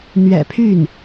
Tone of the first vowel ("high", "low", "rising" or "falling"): low